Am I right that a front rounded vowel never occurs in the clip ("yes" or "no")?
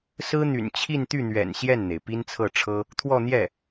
no